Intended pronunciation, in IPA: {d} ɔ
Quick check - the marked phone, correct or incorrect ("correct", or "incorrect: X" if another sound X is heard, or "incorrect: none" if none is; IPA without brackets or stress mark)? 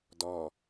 correct